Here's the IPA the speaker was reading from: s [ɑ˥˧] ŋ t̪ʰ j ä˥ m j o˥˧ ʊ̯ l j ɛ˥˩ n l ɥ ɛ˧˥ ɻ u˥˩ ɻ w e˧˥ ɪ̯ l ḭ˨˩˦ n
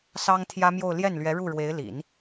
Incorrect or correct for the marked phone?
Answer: incorrect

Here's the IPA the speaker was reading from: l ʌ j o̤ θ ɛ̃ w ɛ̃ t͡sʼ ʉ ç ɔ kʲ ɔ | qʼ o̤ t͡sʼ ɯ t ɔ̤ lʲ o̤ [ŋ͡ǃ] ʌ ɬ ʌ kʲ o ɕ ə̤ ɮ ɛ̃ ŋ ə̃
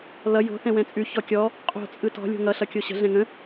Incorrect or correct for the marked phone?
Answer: incorrect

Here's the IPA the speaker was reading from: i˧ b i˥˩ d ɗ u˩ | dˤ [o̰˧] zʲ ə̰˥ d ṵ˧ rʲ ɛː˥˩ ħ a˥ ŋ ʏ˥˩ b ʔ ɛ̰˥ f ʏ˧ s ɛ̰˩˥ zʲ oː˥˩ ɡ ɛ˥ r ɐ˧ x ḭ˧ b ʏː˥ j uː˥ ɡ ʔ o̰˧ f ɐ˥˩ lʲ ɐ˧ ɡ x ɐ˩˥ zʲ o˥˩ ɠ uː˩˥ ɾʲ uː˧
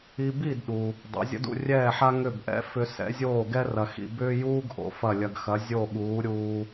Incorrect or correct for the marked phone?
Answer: incorrect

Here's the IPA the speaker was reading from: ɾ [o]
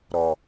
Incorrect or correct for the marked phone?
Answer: incorrect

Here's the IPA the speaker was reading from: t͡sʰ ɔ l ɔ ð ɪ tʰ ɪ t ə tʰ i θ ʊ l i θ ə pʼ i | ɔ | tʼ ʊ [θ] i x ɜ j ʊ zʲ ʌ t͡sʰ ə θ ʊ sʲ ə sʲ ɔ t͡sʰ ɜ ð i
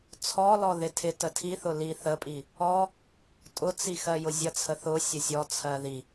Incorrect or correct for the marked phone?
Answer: incorrect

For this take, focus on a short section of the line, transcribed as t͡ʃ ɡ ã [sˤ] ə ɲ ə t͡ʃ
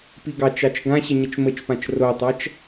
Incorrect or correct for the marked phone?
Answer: incorrect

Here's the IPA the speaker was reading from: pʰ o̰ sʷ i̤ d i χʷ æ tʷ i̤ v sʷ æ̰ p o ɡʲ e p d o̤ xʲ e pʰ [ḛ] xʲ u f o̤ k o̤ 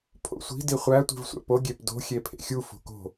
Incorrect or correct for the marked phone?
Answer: correct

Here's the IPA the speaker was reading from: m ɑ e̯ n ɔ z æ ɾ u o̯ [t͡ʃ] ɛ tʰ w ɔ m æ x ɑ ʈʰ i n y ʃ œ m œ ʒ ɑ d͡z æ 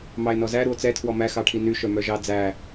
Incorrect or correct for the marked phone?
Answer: incorrect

